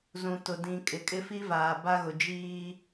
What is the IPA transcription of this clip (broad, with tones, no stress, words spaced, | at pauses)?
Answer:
zũ˨ tʊ˨dĩ˨ kʼɪ˨ kʼɪ˦fi˦vaː˨ ba˦ɣʊ˨d͡ʒiː˦